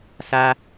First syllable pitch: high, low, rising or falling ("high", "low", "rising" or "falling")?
high